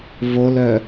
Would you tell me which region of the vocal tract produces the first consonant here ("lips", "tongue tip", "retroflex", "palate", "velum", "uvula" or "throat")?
lips